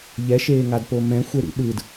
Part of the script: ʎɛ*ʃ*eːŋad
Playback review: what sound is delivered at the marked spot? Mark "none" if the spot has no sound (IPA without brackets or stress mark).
ʃ